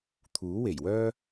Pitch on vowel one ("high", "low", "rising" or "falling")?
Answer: rising